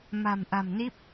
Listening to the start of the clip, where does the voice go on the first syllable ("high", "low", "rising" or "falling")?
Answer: low